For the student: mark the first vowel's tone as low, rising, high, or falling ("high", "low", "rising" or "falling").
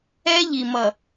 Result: high